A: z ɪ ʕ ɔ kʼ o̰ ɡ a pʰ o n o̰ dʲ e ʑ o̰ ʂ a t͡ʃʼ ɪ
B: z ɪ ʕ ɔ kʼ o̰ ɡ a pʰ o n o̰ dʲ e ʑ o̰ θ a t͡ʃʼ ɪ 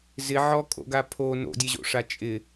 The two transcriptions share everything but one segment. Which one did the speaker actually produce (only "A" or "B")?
A